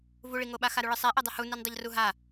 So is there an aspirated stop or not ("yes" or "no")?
no